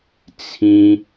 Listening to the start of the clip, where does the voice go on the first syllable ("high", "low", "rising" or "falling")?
high